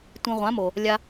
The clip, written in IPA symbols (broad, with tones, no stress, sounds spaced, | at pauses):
tʷ ĩ˧ ʁʷ ã˨˦ m o˨ | lʲ a˧